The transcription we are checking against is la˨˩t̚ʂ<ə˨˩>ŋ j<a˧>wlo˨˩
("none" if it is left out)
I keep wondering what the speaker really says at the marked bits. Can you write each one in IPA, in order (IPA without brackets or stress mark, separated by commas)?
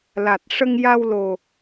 ə˧, a˧